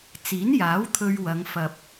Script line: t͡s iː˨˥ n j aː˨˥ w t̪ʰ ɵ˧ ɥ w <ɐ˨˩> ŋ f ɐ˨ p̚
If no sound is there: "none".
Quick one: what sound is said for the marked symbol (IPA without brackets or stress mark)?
ɐ˨˧